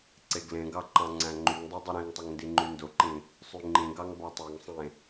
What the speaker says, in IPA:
ǀeɡlẽɡɑ ǃɑ̃ŋ͡ǀæ̃ŋ͡ǃyŋdˤo dˤɯɾĩŋtˤoŋ ndiŋ͡ǃyndoǃĩ | sˤyŋ͡ǃĩɡɑŋ bɑtˤeŋsˤẽ

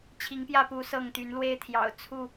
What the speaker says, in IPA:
t͡ɕʰi˨˦ŋpjä˥˨pu˨˦ sɤ˥˨ŋt̪y˨˦nlwe˦ɪ̯ t̪ʰjɑ̰˨˩ʊ̯t͡sʰu˥˨

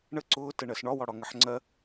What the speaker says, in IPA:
ɳə ǀʊː təɳɜsɳɒ wɒɽɒŋəħŋ͡ǀɜ

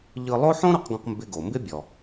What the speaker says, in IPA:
ʎɯ˧lˠo˥ ħõ˥ɾɔ˧qɡõ˧q mbɪ˧ɡo˩mbɪ˥ bʲɔ˩

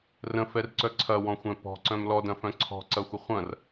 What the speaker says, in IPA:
rə̃fɛrǀœ ǀʰɐwɔ̃xʷɛ̃ pɔ̤ǀœ̃m lɔdɐ̃fœ̃ ǀʰɔ̤ǀɐxʷə χʷɐ̃r

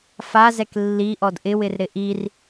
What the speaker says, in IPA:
fazɛk lːiʔɔd ʔɪwɪrɾɪ ʔir

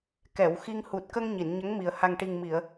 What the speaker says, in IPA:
kɛ˨˩˨wxi˧ŋ hu˨˩t̚kə˧ŋ ɲi˨˩˨nɲə˧˥ŋmi˨˩ə̯ ha˨˩ŋʈi˨˩ŋmi˨˩˨ə̯

